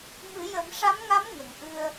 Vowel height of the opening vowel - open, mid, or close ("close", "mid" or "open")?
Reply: close